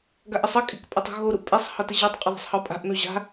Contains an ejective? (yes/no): yes